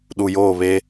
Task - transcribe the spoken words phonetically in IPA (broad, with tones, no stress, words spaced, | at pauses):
ɗu˨joː˦˨βe˦